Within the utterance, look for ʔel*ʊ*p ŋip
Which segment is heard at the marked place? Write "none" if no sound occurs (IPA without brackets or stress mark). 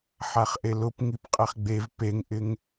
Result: ʊ